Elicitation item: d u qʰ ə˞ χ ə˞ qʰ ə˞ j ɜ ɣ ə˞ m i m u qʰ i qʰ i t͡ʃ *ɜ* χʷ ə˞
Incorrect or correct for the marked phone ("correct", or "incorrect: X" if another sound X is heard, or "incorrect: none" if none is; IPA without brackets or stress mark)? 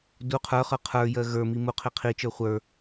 incorrect: ə˞